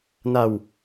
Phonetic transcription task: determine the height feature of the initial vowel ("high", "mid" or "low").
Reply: low